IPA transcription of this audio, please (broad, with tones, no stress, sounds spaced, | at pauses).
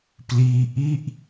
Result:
p l iː˦˥ ʔ i˥˩ ʔ